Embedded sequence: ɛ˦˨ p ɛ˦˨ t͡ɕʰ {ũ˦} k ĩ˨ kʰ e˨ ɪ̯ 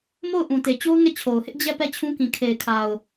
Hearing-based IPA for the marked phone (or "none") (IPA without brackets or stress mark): ũ˦